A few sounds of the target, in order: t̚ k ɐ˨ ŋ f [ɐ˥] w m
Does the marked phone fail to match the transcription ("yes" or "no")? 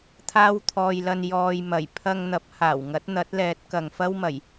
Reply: no